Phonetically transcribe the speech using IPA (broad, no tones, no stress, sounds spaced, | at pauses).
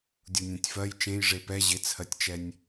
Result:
dʲ u nʲ ɛ̃ tʲ f ɜ j t͡ʃ ẽ j ʐ e p ɛ ʑ ɪ t͡sʰ ɜ tʲ t͡ʃ ɛ nʲ